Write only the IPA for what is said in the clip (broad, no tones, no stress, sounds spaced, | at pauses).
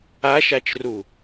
a ʃ a t͡ʃ r u